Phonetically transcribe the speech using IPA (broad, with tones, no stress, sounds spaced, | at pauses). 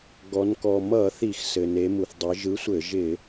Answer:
ɡ ɔ˩˧ n k ɔ˩ m ʌ˧˩˧ θ i˧˩˧ x s ɘ˩ n e˩˧ m u˩ θ dˤ ɘ˩˧ ʒ ɯ˨˥ sʷ ɘ˧˩˧ ʒ ɪ˧˩˧